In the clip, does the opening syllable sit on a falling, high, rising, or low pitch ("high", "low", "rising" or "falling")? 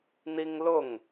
high